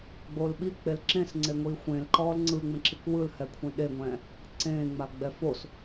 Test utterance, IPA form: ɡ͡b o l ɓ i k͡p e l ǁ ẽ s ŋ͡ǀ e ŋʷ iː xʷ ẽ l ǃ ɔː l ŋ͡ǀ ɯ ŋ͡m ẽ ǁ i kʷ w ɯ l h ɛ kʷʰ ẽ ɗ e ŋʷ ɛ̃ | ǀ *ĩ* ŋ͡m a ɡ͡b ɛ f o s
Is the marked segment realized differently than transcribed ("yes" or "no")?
yes